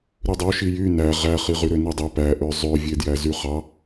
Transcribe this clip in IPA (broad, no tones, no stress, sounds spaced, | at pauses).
ɾ y dˤ o ʃ i j y n æ ʁ æ χ i ʁ y ɾ ø n i dˤ ɯ p æ ʔ ø zˤ ø vʲ e d j æ z y χ ɑ